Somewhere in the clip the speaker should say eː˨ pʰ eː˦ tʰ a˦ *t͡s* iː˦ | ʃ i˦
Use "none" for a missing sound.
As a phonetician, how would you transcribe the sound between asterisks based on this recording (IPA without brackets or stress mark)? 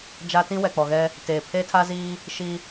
z